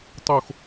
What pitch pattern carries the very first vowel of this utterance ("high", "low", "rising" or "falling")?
falling